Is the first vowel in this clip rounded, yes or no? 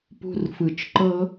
yes